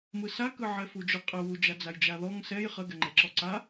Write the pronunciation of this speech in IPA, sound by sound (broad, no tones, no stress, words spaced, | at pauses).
mɯsakɯ ʕɛfud͡ʒʊ qʼə wud͡ʒa d͡zajd͡ʒaðɔŋ sɛj χəɡɛŋ͡ǃɛǁɔ ǀa